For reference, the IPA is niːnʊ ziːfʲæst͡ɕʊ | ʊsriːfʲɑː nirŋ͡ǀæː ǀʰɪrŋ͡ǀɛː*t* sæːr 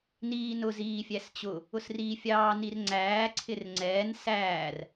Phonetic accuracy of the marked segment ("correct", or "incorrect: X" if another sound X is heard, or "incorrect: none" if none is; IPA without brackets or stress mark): incorrect: n